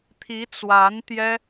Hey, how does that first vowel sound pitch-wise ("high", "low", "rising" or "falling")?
rising